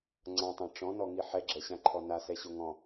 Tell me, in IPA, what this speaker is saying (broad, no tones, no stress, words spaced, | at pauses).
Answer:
ŋ͡ǀãtˤã ʈ͡ʂɔ̃nɔŋi ħɛɡ͡ǁɛɕãǃʰɔ nasɛɕo ŋɔ̃